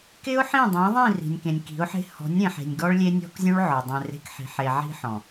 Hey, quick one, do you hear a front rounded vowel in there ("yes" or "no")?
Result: no